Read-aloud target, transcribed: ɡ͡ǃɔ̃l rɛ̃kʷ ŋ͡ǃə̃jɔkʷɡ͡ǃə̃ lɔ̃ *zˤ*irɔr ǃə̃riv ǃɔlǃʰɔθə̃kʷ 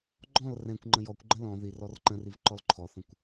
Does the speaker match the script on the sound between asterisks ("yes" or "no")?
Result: no